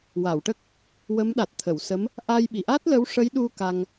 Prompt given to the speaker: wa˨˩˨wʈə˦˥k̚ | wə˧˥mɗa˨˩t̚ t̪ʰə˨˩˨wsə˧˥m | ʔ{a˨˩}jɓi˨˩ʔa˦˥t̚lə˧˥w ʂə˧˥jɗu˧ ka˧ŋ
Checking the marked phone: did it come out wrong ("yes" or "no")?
yes